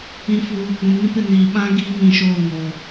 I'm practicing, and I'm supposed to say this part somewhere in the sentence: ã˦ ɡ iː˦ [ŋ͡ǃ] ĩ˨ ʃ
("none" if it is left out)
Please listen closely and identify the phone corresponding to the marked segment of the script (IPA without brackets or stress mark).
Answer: ŋ